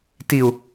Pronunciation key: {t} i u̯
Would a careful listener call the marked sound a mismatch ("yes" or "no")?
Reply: no